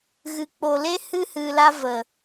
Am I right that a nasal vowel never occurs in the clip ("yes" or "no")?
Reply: yes